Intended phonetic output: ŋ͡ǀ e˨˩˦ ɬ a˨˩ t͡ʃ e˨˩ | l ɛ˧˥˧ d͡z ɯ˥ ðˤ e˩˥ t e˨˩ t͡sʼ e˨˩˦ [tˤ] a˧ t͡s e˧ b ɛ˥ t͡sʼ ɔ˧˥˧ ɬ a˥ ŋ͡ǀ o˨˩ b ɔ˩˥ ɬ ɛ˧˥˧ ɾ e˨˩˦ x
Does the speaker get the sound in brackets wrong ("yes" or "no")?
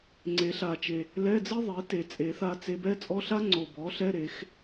yes